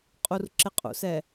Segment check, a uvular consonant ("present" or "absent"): present